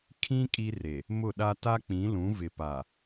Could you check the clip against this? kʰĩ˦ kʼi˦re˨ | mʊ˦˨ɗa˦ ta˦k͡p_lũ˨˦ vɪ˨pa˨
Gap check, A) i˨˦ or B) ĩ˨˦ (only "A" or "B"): B